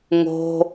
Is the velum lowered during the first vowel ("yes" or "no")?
no